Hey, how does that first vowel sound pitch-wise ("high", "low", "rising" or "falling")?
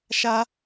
high